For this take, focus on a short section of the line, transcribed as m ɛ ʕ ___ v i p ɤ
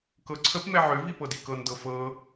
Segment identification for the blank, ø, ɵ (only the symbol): ø